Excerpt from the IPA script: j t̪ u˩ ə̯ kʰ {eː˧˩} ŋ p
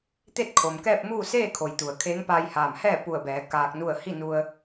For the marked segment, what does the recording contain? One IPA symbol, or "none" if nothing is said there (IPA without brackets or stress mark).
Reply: eː˧˥